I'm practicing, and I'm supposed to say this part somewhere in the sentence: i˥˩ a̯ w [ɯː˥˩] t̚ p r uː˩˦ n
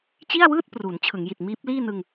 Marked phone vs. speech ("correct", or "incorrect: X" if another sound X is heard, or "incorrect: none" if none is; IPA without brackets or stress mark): correct